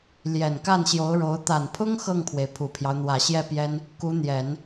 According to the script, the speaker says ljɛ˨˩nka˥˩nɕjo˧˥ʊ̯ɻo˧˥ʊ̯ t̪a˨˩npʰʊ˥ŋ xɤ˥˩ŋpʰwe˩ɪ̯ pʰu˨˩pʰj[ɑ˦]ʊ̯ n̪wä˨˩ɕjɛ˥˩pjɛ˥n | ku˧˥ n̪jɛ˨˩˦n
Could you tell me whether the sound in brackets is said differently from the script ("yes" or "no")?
no